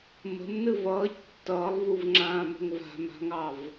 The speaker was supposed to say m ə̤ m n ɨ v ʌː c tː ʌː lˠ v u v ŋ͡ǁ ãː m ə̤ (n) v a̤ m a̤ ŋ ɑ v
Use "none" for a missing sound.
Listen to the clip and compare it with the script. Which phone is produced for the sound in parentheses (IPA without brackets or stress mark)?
ŋ